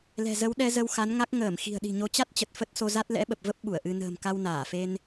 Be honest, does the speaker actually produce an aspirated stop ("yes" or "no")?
no